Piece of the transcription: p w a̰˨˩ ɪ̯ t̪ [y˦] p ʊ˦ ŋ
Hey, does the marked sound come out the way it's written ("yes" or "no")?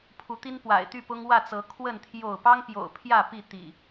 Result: no